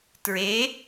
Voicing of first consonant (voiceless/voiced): voiceless